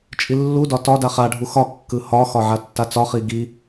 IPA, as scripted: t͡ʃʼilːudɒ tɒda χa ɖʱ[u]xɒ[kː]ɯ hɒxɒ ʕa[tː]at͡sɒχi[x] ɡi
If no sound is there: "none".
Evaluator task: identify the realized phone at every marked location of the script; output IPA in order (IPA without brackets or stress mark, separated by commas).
u, kː, tː, none